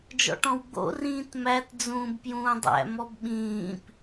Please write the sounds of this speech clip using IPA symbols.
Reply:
d͡ʒ ɔ̰ ʈ ɔ̃ w ɡ͡b o̰ r ĩː t m æ t d͡z ũː b p j ũː dˤ æ̰ m ɔ b ɓ ĩː p

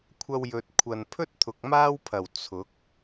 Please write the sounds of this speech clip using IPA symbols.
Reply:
kʷʰ ɐ˧ w j ɵ˨ t̚ kʷʰ ɐ˨ n pʰ ɵ˥ t̚ t̪ʰ ʊ˨ k̚ m aː˥ w pʰ ɐ˨˩ w t͡sʰ ʊ˨˥ k̚

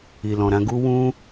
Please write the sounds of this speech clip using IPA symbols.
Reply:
i˨ l ɔ̃˨ ɾ ã˧ ɡ u˦ w ũ˦

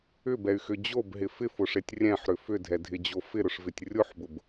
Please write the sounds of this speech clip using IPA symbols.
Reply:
ʏ b ɛ y̯ x ʏ d͡ʑ o b ɦ ɪ f ɪ f ʊ ʂ e tʲ rʲ ɛ̃ ħ ɾ ʏ f ʏ dʱ ɛ dʱ ɪ d͡ʑ o f ɪ ɾ ʊ ʂ v ɪ tʲ rʲ ʊ ħ b ʊ b

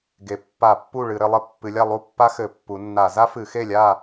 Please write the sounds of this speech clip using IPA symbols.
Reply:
ɡ e˩˧ pː a˧˩˧ pː u˥˨ ɭ ɨ˧˩˧ ɾ ɘ˩˧ lˠ ɘ˥ pː ɨ˩˧ lʲ a˥˨ lˠ u˥˨ pː a˥ x ɘ˧˩˧ pː u˩˧ nː a˧˩˧ z a˥ f ɨ˧˩˧ x e˥˨ lʲ a˥˨

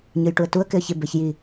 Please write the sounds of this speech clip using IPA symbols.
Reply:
ɲ ɯ j ʈ u ə̯ t u ə̯ k ɪ ə̯ ç ɪ b ɛ ç j i

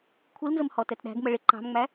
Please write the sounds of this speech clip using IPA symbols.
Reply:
kʷʰ i l n z ə m h ɔ t ɛ t ɗ æ̤ ɡ m ə ɭ ɪ ǃ ɑ̤ m ŋ͡m æ

